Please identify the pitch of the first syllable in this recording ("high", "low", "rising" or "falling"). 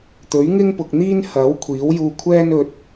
rising